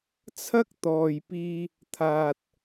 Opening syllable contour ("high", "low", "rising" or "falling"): high